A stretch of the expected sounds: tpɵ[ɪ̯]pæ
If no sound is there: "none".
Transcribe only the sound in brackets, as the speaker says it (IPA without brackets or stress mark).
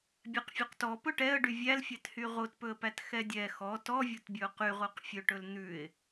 ə̯